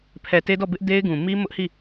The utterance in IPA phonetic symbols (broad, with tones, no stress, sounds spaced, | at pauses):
pʰ ɛ˨ t e˦ d ɔ˦˨ b ɪ˦ ʔ d e˦ ɪ̯ ɡ ũ˨ m i˦ m ʊ˦ ʔ h i˦˨